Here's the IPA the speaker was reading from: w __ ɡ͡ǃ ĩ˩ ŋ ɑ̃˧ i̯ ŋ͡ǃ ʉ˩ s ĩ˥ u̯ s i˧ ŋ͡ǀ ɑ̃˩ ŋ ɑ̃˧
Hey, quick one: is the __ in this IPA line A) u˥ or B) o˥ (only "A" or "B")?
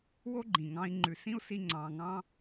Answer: B